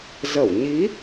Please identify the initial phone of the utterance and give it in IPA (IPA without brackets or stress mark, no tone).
z